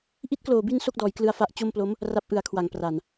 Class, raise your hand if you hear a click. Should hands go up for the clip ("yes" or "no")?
no